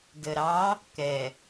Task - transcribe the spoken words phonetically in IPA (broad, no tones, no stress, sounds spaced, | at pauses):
d ə ɾ ɑ | k ɛ